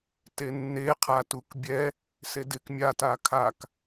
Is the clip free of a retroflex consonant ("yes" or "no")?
yes